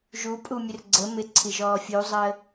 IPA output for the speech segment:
ʒ u pʼ u mʲ ə r ɡ͡ǀ ə m ɪ ǀʰ i ʒ ɔː fʲ u zˤ əː

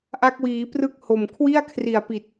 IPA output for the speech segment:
ʔ a˦˥ k̚ w iː˩˦ p r ɯ˥˩ k̚ h o˨˩ m kʰ w i˥˩ a̯ kʰ r i˨˩ a̯ p i˨˩ t̚

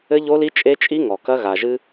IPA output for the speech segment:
ɘ˦ ʎ o˦ l i˦ t͡ʃʼ e˦ t͡ʃʼ i˦ ŋ ɔ˨ k ɐ˦ ɣ a˨ ʒ ɨ˦

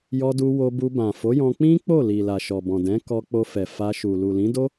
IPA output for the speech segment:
j ɔ˧ d u˧ w o˧ b u˧ b ã˨ f o˨˦ j ɔ̃˧ k͡p ĩ˦ k͡p o˦˨ l i˨ l a˨ ʃ ɔ˨ b ɔ̃˨ d ɛ̃˨˦ k ɔ˧ k͡p o˧ f ɛ˨ f a˧ ʃ u˨ l u˨ l ĩ˨˦ d o˦

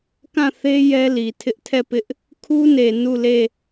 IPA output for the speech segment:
k ã˦˨ θ e˦ j ɛ˦ l i˨ tʰ ɪ˦ ʔ tʰ ɛ˦˨ p ɪ˦ ʔ | kʰ u˦ n e˨ n u˦˨ l e˦˨

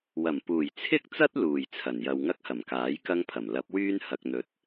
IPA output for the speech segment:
w ɐ˨˩ m p uː˨˩ j t͡sʰ ɪ˥ k̚ t͡s ɐ˥ t̚ l uː˨˩ j t͡sʰ ɐ˨˩ n j ɐ˧ w ŋ ɐ˥ k̚ h ɐ˨˩ m k aː˨˥ j k ɐ˥ ŋ pʰ ɐ˨˩ m l ɐ˨˥ p̚ w yː˥ n h ɐ˧ k̚ n̪ ɵ˧ t̚

